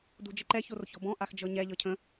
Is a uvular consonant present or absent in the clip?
absent